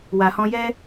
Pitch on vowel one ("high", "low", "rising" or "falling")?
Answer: low